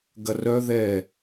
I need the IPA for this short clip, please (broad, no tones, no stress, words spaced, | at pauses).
ɡɐrœ ðɛ